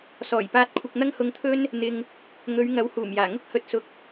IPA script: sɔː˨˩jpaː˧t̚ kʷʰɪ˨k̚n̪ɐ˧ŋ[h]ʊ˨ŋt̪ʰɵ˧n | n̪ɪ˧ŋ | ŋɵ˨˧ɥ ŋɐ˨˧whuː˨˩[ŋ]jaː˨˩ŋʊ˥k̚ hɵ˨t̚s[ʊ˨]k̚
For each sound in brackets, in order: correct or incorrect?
correct, incorrect, incorrect

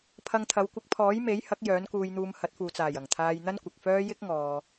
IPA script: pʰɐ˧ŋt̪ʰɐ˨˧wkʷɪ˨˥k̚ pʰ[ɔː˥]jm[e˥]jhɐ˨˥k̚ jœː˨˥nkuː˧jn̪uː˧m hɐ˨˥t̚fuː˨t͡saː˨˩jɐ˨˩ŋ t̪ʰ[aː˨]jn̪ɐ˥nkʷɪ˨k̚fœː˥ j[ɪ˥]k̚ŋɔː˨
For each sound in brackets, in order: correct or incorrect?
incorrect, incorrect, incorrect, correct

